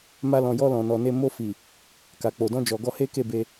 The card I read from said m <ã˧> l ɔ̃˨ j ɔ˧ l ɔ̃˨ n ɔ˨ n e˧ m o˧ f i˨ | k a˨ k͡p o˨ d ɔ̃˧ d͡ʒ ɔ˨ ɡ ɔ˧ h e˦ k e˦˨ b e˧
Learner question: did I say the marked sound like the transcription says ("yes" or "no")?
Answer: no